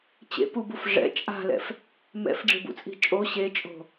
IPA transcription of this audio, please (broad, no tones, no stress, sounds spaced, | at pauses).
t͡ɕ ḛ p u b u f ʐ ɛ̰ t͡ʃʼ a̤ l ɛ̰ f | m ɛ̰ f ɖ͡ʐ i̤ b ṵ t͡sʼ i̤ t͡ʃʼ o ɕ e t͡ʃʼ o̤